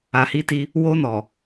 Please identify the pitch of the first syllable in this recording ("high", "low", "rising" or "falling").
low